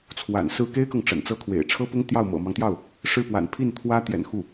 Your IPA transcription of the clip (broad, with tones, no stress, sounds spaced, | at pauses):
t͡sʰ w a̰˨˩ n s ɹ̩˥˩ k e˥ ɪ̯ k ɤ˨ ŋ ʈ͡ʂ ə̰˨˩ n t͡s ɤ˥ kʰ w ḛ˨˩ ɪ̯ ʈ͡ʂʰ ɤ˥ p ʊ˥ ŋ t̪ j ɑ˥˩ ʊ̯ m ɤ̰˨˩ m ɑ˦ ŋ t̪ j ɑ˥˩ ʊ̯ | ʂ ɻ̩˥˩ p w a̰˨˩ n pʰ i˥˩ n t̪ʰ w ä˥ t̪ j ɛ̰˨˩ n x u˥˩